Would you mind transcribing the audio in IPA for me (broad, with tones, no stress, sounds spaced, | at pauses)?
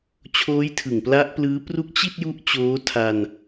t͡ɕʰ oː˦˥ j tʰ ɯ˨˩ ŋ p l a˦˥ ʔ p l ɯː˦˥ p r u˦˥ k̚ t͡ɕ i˥˩ t̚ j u˦˥ ʔ t͡ɕ oː˦˥ tʰ a˧ n